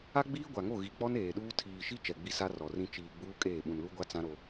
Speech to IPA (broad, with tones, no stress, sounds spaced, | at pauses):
a˦ ɡ͡b iː˦ ɡʷ a˨ ŋ o˦˨ ɣ i˨ k͡p ɔ˦ n eː˨ ɗ uː˦ tʰ iː˨ ʃ i˦ t͡ʃ ɛ˨ ɡ͡b i˦ s a˦ r ɔ˨ r ĩ˦ t͡ʃ iː˨ ɡ͡b uː˦ kʼ eː˦˨ ɓ ũ˨ n l u˦ ɡʷ a˦ t͡s ã˦ ɾ o˦